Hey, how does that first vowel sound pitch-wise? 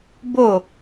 falling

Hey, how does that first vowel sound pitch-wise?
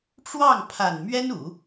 falling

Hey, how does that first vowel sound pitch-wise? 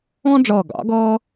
high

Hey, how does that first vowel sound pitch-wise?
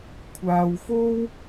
low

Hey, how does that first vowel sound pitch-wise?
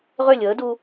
falling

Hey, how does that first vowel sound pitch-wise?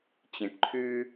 low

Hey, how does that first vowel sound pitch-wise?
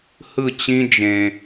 falling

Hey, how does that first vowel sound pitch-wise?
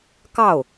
falling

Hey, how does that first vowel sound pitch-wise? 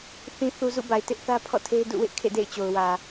low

